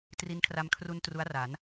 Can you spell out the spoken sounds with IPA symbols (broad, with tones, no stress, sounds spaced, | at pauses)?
t r i˧ n kʰ r a˧ m kʰ r u˧ n t r u˦˥ a̯ r a˩˦ n